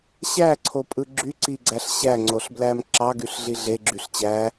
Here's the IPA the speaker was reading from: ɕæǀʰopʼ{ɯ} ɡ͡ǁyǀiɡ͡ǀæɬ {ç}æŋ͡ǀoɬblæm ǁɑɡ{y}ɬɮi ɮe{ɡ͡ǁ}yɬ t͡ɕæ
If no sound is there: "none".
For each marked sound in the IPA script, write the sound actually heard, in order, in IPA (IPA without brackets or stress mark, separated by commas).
ɯ, ɕ, y, ɡ͡ǁ